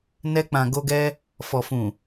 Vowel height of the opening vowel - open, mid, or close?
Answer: mid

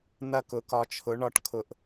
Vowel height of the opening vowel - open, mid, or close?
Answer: open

